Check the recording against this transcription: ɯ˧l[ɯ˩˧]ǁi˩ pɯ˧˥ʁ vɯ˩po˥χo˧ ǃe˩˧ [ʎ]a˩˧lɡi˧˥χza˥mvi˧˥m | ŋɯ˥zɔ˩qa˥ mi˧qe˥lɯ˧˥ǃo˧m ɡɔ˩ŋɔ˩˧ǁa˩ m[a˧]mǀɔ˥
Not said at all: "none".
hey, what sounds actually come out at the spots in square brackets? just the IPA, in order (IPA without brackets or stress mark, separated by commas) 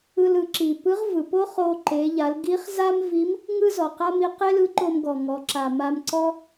ɯ˩˧, ʎ, a˧